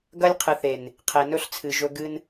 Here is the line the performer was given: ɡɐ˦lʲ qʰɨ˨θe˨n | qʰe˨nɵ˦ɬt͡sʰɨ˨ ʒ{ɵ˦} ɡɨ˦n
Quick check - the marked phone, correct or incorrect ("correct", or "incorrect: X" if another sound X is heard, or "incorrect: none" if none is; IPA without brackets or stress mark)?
correct